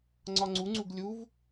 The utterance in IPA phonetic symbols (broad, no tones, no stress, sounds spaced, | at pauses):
ŋ͡ǀ ɒ ŋ͡ǀ u ŋ͡ǀ u ɡ lʲ u v